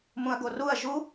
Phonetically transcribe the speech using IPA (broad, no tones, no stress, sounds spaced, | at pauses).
m ũ ɐ̯ ɡ o r u ɐ̯ ʒ u